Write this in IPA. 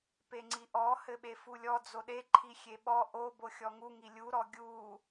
p e ŋ͡ǀ i ʔ ɔ h ɘ ɓ e f u lʲ ɔ d͡z o ɗ e ǃʰ i xʲ e ɓ ɔ ʔ o b o xʲ ɔ ŋ u ŋ i lʲ u ɾ ɔ ɡʲ u

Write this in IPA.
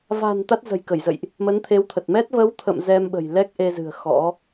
v a̤˨˩ n t̪ a˦˥ t̚ z ə̤˨˩ j k ə˧˩ j z ə̰˧˨ j ʔ | m ə˨˦ n t̪ʰ e˨˦ w t̪ʰ ə˨˩ t̚ m ɛ˦˥ t̚ v ə˨˦ w t̪ʰ ə̰˧˨ m z ɛ˧ m ɓ ə̤˨˩ j l ɛ˦˥ k̚ ʔ e˧ z ɨ̤˨˩ ə̯ x ɔ̰˧˥

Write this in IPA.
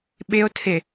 ɓ ɪ o̯ tʰ ɪ

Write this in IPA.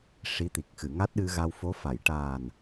ʂ i˧˥ t̪ i˨˩ k̚ x ɨ˨˩˨ ŋ a˦˥ t̚ ɗ ɨ˧ ɣ a˧ w f o˧˥ f a˨˩˨ j ʈ aː˨˩ n

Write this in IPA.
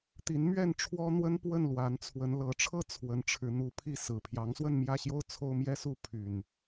t̪ i˨˦ n m ɥ ɛ˥˨ n ʈ͡ʂʰ w ɔ˦ n̪ w ə˦ n p w ə˥˨ n l w a˨˦ n t͡sʰ w ə˨˦ n l ɤ˨˦ ʈ͡ʂʰ ɤ˦ t͡sʰ w ə˨˦ n ʈ͡ʂʰ ɻ̩˨˦ n̪ u˨˦ pʰ i˥˨ s ɹ̩˨˩ pʰ j ɑ˨˦ ŋ s w ə˥˨ n m j ä˥˨ ɕ j o˦ ʊ̯ t͡sʰ o˦ ʊ̯ m j ɛ˦ s u˥˨ pʰ y˨˩ n

